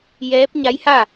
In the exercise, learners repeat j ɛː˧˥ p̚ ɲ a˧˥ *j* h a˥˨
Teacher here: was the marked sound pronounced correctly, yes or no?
yes